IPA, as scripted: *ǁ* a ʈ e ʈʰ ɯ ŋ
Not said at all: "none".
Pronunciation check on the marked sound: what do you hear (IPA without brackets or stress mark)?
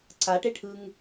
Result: ǀ